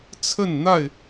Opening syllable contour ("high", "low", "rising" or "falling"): falling